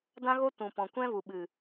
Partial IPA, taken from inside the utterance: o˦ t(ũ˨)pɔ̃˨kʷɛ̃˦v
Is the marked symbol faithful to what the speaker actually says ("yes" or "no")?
yes